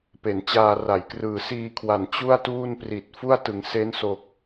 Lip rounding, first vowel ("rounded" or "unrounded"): unrounded